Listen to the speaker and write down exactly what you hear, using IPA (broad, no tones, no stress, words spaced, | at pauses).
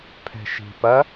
pʰɛ̤ʃi̤pɐ